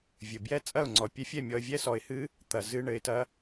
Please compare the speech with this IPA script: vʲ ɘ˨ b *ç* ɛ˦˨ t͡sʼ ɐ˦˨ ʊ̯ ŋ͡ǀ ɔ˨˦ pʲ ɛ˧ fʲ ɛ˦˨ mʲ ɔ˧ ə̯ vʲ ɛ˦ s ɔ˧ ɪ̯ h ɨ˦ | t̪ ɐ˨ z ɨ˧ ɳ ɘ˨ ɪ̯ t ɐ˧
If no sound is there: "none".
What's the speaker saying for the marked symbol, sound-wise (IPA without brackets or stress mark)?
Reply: j